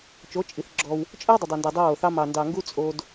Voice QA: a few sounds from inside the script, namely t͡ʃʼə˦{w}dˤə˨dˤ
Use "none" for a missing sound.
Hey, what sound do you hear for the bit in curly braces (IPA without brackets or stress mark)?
w